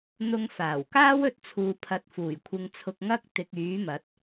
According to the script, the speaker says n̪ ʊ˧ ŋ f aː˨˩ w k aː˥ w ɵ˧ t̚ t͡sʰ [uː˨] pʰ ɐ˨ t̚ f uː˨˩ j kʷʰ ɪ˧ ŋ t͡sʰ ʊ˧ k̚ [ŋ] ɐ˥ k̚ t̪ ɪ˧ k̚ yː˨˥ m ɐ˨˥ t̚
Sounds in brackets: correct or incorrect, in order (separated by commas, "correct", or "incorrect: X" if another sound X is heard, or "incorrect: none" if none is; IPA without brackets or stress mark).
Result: correct, correct